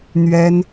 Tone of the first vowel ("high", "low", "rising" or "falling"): high